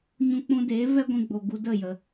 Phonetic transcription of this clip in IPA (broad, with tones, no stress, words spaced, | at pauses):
ɲũ˧k͡pũ˧deː˨˦ vɛ˦ɡʷĩ˧ɡ͡bo˨ ɡu˧ də˦˨jə˨